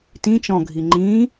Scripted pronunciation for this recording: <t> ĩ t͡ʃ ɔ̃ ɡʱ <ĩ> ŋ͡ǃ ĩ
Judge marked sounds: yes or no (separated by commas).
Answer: yes, no